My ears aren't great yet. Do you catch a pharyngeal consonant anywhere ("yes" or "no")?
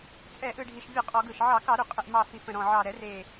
yes